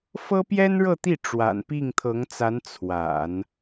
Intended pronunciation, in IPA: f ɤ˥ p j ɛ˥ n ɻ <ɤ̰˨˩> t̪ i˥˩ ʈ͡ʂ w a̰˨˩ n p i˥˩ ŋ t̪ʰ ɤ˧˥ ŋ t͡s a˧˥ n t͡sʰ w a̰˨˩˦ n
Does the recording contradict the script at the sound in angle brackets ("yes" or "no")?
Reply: yes